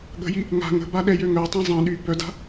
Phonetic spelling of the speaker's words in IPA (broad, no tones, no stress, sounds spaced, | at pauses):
ɠ ə̤ j i | ŋ a̤ ŋ ə̤ b a ɗ ɛ j ø ŋ œ tˤ ɛ̃ zˤ ɛ̃ ɗ y b œ d a̤